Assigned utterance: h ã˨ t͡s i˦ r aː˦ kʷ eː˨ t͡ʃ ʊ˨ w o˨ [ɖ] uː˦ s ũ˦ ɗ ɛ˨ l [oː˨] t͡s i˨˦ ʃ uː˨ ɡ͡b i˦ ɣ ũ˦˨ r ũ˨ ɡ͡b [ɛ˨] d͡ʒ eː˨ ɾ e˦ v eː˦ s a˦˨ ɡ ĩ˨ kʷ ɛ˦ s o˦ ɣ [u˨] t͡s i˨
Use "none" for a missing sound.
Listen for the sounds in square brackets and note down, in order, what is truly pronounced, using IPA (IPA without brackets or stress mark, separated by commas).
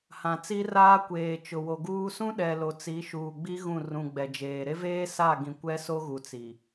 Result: ɡ, o˨, ɛ˨, u˨